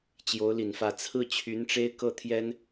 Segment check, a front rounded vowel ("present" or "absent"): present